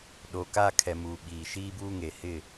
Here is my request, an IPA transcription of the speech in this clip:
ɗ oː˨ k a˦˨ kʰ ɛ˨ m uː˨ ɓ iː˨ ʃ iː˦ b uː˦ ŋ e˨ h ɪ˦˨

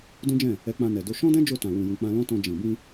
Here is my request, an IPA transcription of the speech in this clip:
d ũ˦ d͡ʒ ɛ̃˦˨ | ɛ˧ k͡p ã˧ n ɛ˨ d o˧ ʃ ɔ̃˦ d ɛ̃˦ d͡ʒ o˦˨ t ã˨ w ũ˨ j ũ˨ k͡p ã˧ l ɔ̃˦ t ɔ̃˧ d͡ʒ ĩ˨ b ĩ˧

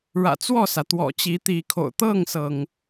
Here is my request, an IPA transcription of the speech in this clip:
ɻ ä̰˨˩ t͡s w ɔ˥˨ s ä˩ t̪ w ɔ̰˨˩ t͡ɕ i˨˦ t̪ i˨˦ kʰ o̰˨˩ ʊ̯ t̪ ɤ˥˨ ŋ s ɤ˩ ŋ

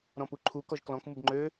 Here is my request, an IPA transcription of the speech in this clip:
ɾ ɔ̃ p u ǃʰ u k ɔ ʒ k l ɔ̃ k m u b ŋ͡ǃ ø

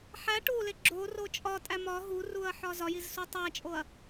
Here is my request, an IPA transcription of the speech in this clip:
ħ æ ʈ u l e ɡ͡ǁ o r o t͡ʃʼ ɒ tʼ æ m ɒ ɦ u r u ɐ̯ ħ ɒ z ɒ j i z s u tˤ æ t͡ʃʼ o ɐ̯

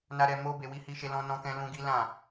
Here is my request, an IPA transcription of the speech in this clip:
n a˦ ɾ ɛ˧ m o˦ b e˧ w i˦ h i˦ ʃ e˦ l ɔ̃˦ n ɔ̃˦ k ɛ̃˦ l ũ˦ ɡ i˦ l ã˦˨

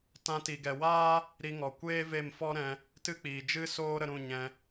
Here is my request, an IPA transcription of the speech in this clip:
t ã˧ t i˨ ɡ ɛ˨ w aː˦ | ɾ i˧ ŋ ɔ˨ kʷ eː˦ v e˦˨ m f ɔ˦ ɾ ɛ̃˧ | t ɨ˦ k͡p iː˨ d͡ʒ ɨ˦ s oː˦ ɾ ə˧ ɾ ũ˦˨ ɲ ɛ̃˧

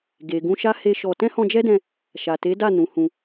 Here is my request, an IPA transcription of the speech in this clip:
ɡ e˨ ɡ ũ˧ ʃ a˦ h e˦ ʃ ɔ˧ t ɛ̃˦ h ɔ̃˧ d͡ʒ ɛ˦ d ɛ̃˧ | ʃ a˨ t e˨˦ d a˦˨ n ũ˨˦ h ũ˧

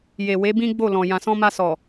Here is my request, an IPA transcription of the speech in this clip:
j e˨ w e˨˦ b ĩ˦ ɡ͡b o˦˨ l ɔ̃˨ j ã˨ s ɔ̃˧ m a˧ s ɔ˨

